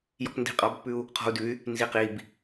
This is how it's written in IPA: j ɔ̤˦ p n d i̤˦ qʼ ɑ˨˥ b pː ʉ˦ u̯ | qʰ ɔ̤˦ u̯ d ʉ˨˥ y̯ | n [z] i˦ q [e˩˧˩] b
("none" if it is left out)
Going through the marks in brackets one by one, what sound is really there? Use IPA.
z, i˩˧˩

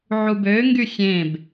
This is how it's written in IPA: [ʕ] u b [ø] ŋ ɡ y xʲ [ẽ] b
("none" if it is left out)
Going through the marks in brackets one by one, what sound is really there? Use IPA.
ʕ, ø, ẽ

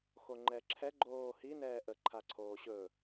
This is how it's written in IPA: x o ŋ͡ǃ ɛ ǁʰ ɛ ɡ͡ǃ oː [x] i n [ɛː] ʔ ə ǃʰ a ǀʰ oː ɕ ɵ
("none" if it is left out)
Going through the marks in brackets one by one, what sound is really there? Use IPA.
h, ɛː

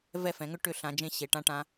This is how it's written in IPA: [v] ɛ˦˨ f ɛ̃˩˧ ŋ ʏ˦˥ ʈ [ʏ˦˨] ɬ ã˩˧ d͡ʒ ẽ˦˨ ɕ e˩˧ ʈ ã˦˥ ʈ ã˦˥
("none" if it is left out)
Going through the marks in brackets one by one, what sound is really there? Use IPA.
v, ʏ˦˨

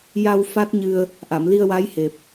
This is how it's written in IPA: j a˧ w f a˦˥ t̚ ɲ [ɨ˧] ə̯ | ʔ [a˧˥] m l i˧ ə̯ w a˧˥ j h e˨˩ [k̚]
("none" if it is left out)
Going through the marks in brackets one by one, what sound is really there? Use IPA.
ɨ˧, a˨˩˨, p̚

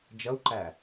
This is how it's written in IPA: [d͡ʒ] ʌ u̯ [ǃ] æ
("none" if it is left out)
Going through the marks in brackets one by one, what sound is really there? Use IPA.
d͡ʒ, ǃ

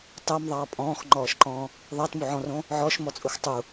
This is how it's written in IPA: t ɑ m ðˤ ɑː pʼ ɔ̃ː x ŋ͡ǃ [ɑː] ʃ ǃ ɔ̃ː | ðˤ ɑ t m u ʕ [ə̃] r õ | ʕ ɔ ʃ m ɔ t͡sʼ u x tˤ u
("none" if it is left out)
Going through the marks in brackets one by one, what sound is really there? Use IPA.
ɔː, ɔ̃

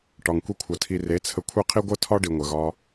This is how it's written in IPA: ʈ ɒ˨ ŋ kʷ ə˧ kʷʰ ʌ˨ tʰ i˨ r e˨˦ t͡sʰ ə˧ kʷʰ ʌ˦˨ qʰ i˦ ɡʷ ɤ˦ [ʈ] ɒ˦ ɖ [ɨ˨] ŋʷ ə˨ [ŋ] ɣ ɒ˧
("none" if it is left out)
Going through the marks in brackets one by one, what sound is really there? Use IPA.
tʰ, i˨, none

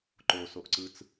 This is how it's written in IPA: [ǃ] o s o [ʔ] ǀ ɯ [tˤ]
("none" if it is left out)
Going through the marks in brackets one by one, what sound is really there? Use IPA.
ǃ, ʔ, t͡s

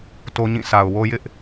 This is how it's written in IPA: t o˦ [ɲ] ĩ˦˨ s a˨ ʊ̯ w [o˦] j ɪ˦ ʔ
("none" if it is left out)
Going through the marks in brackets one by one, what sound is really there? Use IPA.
ɲ, o˦

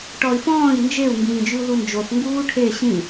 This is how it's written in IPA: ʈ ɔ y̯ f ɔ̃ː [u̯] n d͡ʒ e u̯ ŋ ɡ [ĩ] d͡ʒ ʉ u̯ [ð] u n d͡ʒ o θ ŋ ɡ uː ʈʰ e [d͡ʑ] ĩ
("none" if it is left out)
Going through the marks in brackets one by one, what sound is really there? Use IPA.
i̯, ĩː, ð, ɕ

